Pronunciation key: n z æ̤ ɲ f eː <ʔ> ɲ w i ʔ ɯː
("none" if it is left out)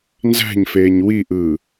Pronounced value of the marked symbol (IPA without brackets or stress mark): none